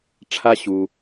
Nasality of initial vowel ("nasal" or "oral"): oral